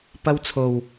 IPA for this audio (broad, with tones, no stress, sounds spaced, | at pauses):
p ɐ˥ w t͡sʰ o˨˩ w